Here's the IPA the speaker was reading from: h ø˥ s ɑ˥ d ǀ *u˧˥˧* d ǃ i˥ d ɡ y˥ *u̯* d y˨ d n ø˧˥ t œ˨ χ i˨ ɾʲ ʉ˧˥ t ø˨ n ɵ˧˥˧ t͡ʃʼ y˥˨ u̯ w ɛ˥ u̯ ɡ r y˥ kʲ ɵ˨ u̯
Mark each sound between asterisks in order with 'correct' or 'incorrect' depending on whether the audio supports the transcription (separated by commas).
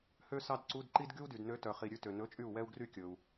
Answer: correct, correct